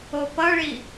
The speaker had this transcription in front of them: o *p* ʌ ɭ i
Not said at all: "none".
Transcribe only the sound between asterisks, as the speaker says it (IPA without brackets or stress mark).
p